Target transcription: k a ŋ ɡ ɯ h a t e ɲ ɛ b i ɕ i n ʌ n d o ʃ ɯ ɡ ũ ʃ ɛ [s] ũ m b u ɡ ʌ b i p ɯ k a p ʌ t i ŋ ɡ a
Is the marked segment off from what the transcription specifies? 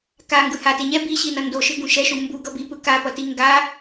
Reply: yes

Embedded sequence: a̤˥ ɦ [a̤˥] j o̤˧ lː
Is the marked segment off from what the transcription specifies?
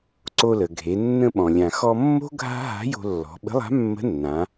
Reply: yes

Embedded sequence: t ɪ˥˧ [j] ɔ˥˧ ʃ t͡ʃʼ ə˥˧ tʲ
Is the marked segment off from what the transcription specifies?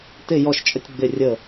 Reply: no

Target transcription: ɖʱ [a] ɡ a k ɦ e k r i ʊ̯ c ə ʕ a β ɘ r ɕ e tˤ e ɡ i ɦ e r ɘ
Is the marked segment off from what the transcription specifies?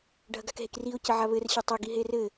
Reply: yes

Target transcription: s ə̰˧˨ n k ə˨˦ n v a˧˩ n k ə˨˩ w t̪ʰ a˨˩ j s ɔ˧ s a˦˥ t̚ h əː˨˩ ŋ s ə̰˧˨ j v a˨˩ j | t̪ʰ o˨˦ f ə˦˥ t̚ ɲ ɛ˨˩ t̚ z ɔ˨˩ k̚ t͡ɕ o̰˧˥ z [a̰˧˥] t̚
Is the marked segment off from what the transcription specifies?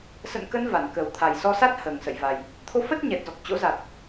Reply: yes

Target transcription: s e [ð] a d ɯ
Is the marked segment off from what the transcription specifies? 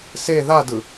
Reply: no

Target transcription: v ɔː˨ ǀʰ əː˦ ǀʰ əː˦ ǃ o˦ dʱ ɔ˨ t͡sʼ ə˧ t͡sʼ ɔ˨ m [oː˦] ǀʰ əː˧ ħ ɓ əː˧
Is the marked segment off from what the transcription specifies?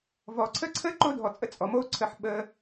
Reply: no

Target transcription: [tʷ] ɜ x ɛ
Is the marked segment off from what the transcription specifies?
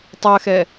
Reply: yes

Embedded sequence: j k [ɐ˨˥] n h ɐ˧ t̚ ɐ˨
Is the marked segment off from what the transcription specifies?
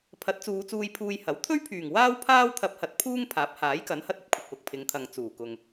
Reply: no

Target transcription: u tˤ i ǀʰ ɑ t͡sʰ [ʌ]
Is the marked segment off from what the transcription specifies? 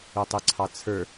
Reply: yes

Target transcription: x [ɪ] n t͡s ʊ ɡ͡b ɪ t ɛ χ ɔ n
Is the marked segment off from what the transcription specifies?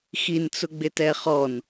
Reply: yes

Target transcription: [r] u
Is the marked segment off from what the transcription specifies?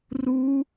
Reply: no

